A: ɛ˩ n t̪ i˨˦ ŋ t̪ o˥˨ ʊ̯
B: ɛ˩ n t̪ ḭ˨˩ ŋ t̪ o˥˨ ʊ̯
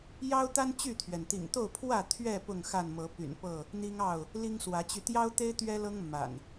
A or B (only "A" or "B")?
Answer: B